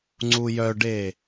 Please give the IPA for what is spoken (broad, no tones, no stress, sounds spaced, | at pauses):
ŋ͡ǀ u j œ ɖ e